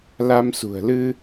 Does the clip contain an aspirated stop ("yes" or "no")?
no